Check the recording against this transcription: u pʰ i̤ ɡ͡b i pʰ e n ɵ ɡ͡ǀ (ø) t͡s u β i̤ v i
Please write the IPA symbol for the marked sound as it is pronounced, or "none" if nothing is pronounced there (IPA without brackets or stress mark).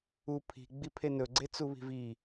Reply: e